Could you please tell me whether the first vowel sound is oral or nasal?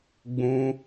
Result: nasal